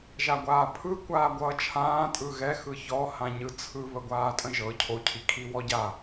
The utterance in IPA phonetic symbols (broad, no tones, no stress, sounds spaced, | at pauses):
ʒ a ɡʷ aː pʰ ɯ kʷ aː ɡʷ ʌː t͡ʃʰ ãː tʼ ɯ ɣ ɛ x ɯ ç ɔ h ã ɲ ɯ t͡sʰ ɯ β ə ɡʷ aː tʼ ə̃ ʒ ɤ cʰ o cʰ i kʰ i w ɔ ɟ a